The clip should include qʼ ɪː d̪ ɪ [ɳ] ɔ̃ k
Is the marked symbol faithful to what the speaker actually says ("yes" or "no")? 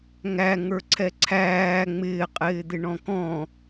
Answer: yes